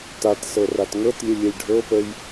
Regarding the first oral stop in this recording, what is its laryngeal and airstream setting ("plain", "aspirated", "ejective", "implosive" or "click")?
plain